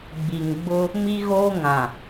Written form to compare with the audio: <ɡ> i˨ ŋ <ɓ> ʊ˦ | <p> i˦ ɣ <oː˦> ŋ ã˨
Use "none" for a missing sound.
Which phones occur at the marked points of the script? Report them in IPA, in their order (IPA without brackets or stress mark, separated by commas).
ɡ͡b, ɡ͡b, m, oː˦